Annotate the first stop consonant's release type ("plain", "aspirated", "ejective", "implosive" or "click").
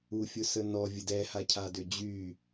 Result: plain